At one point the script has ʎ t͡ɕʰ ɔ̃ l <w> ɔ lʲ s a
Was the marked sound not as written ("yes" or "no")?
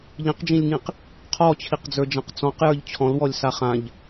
no